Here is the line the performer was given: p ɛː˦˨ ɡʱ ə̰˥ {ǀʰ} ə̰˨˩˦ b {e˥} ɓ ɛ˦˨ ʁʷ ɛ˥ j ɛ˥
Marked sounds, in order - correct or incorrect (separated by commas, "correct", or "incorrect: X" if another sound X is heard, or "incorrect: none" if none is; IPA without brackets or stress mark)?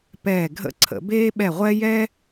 correct, incorrect: eː˥